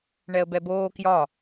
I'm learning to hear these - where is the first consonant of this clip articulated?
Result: retroflex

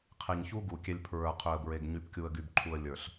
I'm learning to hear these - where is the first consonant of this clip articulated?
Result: uvula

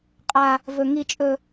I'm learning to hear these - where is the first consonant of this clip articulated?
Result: uvula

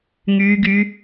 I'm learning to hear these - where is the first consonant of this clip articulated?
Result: velum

